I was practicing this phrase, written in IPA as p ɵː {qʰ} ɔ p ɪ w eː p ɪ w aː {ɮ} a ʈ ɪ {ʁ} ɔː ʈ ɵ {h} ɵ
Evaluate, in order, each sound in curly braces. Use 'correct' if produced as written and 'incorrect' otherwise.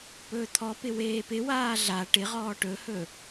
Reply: incorrect, correct, correct, correct

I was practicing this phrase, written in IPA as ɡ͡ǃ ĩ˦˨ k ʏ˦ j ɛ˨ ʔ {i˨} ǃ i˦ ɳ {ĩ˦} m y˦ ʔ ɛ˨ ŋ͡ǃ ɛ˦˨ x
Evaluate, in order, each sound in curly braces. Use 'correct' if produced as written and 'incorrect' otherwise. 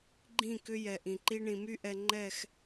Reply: incorrect, incorrect

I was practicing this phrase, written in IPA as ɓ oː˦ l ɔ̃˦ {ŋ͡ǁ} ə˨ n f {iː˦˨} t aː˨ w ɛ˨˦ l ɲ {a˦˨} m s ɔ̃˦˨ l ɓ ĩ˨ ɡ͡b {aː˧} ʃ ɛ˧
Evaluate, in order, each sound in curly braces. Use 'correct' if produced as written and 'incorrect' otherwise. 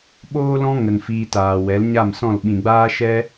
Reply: incorrect, incorrect, correct, correct

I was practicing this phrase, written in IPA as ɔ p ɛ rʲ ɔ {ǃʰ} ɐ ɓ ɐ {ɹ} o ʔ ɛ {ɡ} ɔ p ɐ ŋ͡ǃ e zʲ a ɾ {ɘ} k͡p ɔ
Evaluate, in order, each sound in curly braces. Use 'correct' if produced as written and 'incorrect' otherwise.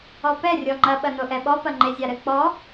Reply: incorrect, incorrect, incorrect, correct

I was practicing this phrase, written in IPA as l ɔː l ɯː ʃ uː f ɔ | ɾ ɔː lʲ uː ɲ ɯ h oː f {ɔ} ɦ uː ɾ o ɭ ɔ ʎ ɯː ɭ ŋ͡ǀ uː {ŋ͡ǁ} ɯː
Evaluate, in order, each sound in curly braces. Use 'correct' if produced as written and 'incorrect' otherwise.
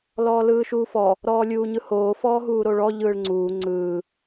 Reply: incorrect, incorrect

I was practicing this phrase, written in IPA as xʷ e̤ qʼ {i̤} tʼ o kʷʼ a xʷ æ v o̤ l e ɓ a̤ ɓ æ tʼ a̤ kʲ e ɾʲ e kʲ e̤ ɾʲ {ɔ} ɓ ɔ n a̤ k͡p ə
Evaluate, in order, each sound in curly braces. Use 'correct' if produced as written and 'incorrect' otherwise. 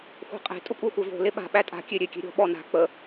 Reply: incorrect, incorrect

